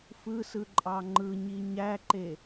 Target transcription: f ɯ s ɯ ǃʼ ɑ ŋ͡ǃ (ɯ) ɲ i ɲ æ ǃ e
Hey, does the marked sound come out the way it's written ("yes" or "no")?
yes